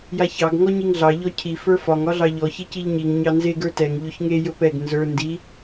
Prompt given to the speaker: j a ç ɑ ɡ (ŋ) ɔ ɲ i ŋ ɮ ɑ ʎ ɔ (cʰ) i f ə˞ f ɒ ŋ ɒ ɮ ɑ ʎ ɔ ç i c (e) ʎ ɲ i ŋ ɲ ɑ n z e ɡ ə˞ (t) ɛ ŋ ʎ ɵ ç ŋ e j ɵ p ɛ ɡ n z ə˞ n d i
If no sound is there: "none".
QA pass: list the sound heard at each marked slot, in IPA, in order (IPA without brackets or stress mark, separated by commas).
ŋ, cʰ, i, t